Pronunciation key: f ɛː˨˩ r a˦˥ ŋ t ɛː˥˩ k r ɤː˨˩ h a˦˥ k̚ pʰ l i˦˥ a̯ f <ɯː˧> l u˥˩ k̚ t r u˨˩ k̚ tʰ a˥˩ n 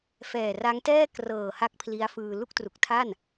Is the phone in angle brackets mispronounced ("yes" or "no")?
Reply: no